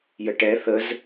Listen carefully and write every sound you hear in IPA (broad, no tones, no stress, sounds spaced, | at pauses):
j ə ʈ ɛ θ ə z